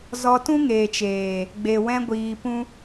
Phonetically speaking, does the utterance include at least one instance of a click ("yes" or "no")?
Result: no